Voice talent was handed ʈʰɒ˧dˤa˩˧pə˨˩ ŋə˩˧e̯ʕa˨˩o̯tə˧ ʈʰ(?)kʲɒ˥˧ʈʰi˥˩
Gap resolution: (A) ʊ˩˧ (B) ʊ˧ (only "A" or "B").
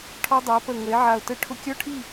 B